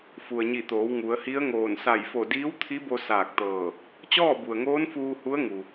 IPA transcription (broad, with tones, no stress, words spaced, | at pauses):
fu˩ə̯ɲi˧˩t̪oː˩˧w ŋu˩˧ə̯hi˧˥ə̯ŋoː˧˩n sa˧˩jfo˧˩ diː˧˥wt̪ʰi˧˥bo˧ saː˧˩k̚t̪ɤː˧˩ | t͡ɕɔː˥˨bu˩ə̯ŋoː˧˥n fuː˧ hu˧˥ə̯ ŋu˩